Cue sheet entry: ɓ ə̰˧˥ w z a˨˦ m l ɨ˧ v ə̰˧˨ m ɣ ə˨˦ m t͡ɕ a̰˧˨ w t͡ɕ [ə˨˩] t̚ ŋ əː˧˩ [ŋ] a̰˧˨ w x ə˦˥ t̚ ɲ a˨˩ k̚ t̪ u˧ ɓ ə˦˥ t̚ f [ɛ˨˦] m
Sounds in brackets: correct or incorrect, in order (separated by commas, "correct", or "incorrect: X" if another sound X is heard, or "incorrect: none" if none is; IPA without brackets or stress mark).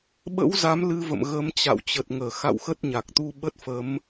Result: correct, incorrect: x, incorrect: ə˨˦